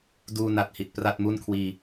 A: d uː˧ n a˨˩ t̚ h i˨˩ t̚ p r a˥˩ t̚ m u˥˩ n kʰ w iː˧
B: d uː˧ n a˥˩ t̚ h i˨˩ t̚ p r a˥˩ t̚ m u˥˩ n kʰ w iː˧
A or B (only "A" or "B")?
A